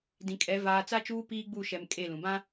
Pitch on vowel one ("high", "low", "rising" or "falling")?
low